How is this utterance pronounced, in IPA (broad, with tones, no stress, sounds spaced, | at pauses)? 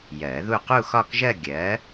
j ɜ˨˩˦ ð u˥˧ q u˥˧ x ɒ˥˧ k ʒ ɜ˥˧ ɡʲ ɜ˨˥